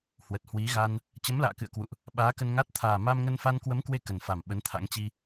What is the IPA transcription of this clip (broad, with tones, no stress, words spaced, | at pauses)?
hwə˨˩t̚hwi˨˦ ɣa˧n | t͡ɕə˨˦mla̰ː˧˨kɨ̰˧˨ə̯kwṵ˧˨ʔ | ɓaː˨˦kə˧nŋa˦˥t̚ t̪ʰaː˨˩ma˧mŋə˧n fa˧nkwə˨˦mkwe˧ kə˨˩nfa˨˩m ɓə˨˦nt̪ʰa̰˧˥ŋ t͡ɕi˧